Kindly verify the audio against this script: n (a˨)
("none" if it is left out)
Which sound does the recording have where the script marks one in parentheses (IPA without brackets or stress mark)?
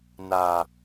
a˨